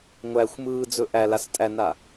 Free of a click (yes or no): yes